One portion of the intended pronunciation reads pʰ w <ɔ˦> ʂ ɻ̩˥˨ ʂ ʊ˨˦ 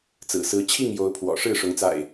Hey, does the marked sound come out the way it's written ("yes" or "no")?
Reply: no